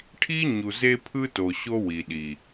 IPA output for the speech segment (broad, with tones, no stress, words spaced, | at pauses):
ʈʰi˦ɲu˨ ze˦pʰɯ˦to˨ ɕo˦wi˨ɗi˨